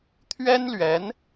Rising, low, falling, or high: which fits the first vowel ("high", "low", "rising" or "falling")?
high